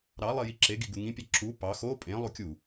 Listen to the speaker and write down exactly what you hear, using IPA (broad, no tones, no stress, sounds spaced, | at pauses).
ɾ ɑ lˠ i j i ǁ e ɡ i ɡ u ŋ ĩ pʲ ɑ ǁ u p ɑ x o pʼ ẽ lˠ u kʲ u